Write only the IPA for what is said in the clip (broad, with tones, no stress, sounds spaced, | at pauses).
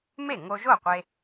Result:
m e˥˩ ŋ o˧ ʒ o˥˩ qʷ e˧